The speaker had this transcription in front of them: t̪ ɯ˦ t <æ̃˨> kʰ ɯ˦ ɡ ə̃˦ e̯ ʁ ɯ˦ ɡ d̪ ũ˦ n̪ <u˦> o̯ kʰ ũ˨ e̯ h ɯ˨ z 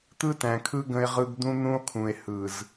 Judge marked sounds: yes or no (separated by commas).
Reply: yes, no